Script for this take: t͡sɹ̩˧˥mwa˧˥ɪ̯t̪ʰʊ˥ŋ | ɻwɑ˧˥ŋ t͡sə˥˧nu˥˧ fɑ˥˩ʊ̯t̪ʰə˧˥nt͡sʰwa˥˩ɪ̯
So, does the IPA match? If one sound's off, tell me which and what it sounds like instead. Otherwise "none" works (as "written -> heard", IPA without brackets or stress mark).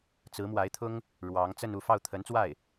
t͡sʰ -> t͡s